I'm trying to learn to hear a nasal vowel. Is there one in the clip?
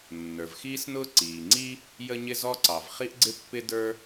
no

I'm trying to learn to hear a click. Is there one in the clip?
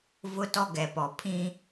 no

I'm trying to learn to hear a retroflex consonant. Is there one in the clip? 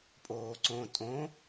no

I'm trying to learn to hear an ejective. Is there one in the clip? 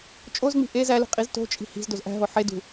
yes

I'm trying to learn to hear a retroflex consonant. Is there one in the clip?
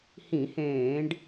yes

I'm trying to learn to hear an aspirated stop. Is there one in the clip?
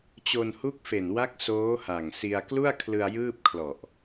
yes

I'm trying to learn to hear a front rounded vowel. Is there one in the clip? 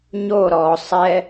no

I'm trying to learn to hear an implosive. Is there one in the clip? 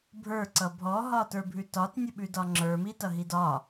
yes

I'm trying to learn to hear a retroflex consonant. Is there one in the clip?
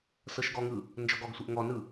no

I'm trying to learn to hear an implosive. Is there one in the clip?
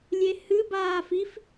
no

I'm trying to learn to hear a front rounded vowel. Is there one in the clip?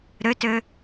yes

